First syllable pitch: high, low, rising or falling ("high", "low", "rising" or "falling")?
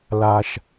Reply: low